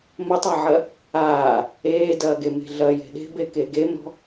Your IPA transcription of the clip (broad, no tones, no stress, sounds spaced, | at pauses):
m ɐ tˤ a ʕ ɐ | aː | eː d ɐː ɡ e m e̤ ɮ ɐ j e̤ ɗ e̤ b e k e ɡ e m ɾ ɔ̤